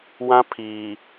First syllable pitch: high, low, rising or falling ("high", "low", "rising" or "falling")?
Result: high